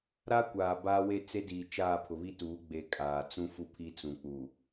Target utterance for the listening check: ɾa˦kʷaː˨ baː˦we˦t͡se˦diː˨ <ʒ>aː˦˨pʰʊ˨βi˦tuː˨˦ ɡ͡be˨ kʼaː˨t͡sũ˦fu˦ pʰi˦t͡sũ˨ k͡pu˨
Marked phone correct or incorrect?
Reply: incorrect: t͡ʃ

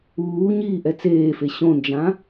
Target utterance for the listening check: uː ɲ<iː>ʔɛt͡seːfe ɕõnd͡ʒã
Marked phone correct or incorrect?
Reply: correct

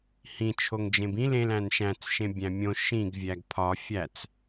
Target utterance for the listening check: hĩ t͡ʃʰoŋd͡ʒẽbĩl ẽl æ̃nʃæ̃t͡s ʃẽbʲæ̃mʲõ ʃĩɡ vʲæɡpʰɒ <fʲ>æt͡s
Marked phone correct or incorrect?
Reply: correct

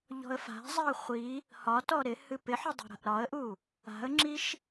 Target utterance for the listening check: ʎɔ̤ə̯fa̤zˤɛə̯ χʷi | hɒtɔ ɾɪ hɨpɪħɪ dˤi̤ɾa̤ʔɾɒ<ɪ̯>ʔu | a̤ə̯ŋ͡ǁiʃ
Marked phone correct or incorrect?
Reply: incorrect: ə̯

